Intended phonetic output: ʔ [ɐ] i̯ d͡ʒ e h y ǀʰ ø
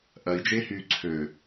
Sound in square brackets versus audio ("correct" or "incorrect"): correct